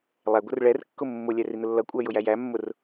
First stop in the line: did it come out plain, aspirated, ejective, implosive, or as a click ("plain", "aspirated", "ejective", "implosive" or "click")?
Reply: plain